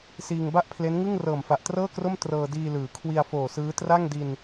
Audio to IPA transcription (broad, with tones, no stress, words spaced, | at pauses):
siː˧ŋ ba˥˩ʔpʰle˦˥nŋɯ˥˩ŋ rɤː˨˩mfa˨˩ʔtrɤː˥˩kro˥˩m trɤː˧diː˧lɯː˩˦ kʰwi˧a̯foː˨˩sɯː˦˥ tra˥˩ŋdi˧n